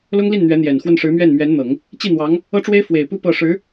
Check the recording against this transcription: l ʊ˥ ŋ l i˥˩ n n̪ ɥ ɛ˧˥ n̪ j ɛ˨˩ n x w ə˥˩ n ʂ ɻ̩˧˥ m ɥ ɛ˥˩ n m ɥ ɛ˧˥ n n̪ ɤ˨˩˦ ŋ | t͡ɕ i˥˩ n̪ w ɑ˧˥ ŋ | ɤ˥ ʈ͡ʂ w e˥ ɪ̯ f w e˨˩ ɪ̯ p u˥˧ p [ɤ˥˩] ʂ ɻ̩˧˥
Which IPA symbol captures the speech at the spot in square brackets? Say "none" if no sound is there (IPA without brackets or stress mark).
ɤ˥˩